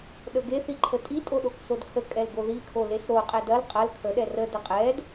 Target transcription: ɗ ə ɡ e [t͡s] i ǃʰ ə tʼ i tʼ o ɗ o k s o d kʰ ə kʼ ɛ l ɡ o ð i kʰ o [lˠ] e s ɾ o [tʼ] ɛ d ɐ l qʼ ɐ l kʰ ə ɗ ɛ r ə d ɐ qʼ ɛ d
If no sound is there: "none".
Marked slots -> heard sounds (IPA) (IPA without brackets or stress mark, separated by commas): θ, l, qʼ